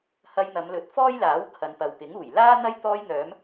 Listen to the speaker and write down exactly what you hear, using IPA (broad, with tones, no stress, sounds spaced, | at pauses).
h ɐ˧ j n̪ ɐ˨˧ m l ɵ˨˥ t̚ f ɔː˥ j l aː˨˥ w kʰ ɐ˨˧ n p ɐ˨ w p ɪ˨˥ ŋ uː˨˩ j l aː˥ n̪ ɐ˥ j t̪ ɔː˧ j n̪ œː˨˧ m